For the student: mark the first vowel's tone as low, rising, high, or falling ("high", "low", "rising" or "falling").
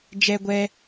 high